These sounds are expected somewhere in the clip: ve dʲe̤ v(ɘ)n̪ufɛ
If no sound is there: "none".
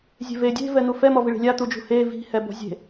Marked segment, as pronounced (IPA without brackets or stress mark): ɛ